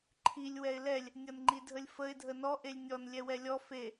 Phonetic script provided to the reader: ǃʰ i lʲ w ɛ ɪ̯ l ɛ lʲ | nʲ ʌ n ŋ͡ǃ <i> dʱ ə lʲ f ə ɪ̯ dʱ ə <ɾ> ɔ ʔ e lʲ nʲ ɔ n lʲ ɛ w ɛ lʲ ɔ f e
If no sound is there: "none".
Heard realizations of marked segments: i, n

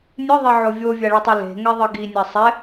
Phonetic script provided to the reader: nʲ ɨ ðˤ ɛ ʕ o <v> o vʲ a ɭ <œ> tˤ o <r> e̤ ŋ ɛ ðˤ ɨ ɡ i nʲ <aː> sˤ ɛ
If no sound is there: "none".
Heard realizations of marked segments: vʲ, ɵ, l, a

